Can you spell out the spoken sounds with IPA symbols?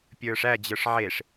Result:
pʲə˞ʂæ d͡ʑə˞ʂʕeʂ

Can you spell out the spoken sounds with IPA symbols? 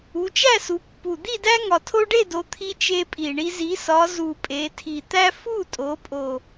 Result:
u˩˧t͡ʃæ˥˨su˩˧pːu˨˩ d̪i˥˨dæ˦ ŋɒ˨˩tʰo˦ɖe˥˨do˩˧ t̪ʰi˦t͡ʃe˦pʼi˨˩ɳi˦ zi˩˧sɒ˩˧ zu˨˩pʼe˩˧tʰi˨˩ t̪æ˦fu˥˨tʼo˩˧pʼo˨˩

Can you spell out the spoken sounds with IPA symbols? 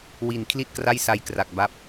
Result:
wi˨˩n kʰli˥˩t̚kra˥˩jsa˧j kra˨˩k̚ba˦˥p̚

